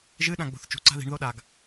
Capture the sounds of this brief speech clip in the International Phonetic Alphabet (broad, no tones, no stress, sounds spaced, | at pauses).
ʒ ɨ ɗ ã ɡ͡b o̤ θ t͡ʃ ṳ ǀ a̤ ð i̤ ɳ ð o ɗ a ɡ